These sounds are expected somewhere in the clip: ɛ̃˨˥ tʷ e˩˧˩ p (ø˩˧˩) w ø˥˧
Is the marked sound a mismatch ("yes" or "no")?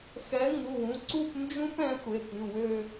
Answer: yes